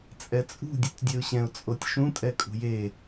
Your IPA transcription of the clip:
t͡sʼ ɛ t͡sʼ ṳ dʲ ɯ tʲ dʲ e ʊ̯ ɕ ɛ̃ ʊ̯ t͡sʼ o tʲ ʃ ũ tʼ ɛ kʼ ṳ j e

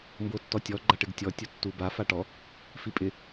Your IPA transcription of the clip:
m b o tː ɔ tʲ ɔ ɡ͡ǃ a ʈ ɪ ɡ tʲ ɔ tʲ o tː u b a f a ʈ ɔ | f i pʼ ɪ

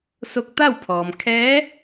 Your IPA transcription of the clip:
s o˧ k̚ t̪ a˥˨ w pʰ ɔː˩ m kʰ ɛː˧˥

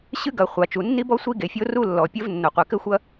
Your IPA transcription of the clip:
ɕ ɨ˥ ɡ ɐ˩ χʷ a˩ t͡ʃ u˩ nː i˥ b ɔ˥ sʷ i˥ ɡ e˩ fʲ o˥ r u˥ lː ɔ˩ pʲ ɘ˥ v nː o˩ qʷ ɛ˩ k ɘ˥ xʷ ɐ˥

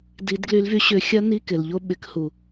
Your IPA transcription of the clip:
d i˨˩˦ d ɡ l y˨˦ l v y˨˦ ɕ ʏ˨˦ xʲ ɐ˦˥ n i˧˥˧ k ɪ˩ l ʎ o˥˧ ɓ ɪ˨˩˦ k h u˩

